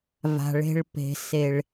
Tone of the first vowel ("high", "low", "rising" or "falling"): low